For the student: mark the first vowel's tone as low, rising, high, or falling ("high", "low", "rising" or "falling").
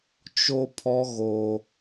high